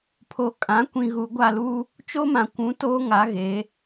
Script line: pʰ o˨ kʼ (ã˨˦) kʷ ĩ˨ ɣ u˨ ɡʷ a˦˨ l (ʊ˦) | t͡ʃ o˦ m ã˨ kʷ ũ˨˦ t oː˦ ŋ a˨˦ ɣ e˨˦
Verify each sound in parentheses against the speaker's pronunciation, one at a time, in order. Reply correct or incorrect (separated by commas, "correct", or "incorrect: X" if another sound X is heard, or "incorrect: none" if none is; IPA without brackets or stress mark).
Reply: correct, incorrect: u˦